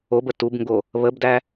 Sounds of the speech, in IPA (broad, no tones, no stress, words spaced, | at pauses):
obə tubŋɡo | βəbdæ